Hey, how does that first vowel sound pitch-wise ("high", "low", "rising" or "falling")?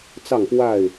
falling